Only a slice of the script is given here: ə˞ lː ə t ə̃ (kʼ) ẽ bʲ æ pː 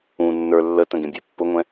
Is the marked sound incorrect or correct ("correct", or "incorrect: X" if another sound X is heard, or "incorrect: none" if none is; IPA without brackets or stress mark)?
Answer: incorrect: ɡ